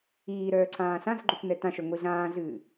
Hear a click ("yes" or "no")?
yes